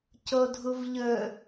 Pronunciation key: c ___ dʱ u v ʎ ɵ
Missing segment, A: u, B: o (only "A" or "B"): B